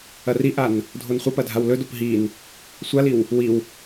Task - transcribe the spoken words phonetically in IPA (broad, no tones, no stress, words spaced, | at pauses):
ɐriʔan | dʱonχʷɐpɐ dʱawlɵdop ɦin | sʷaliw | wiw